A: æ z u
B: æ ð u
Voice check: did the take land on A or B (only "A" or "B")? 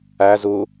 A